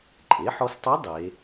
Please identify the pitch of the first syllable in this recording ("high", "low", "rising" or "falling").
rising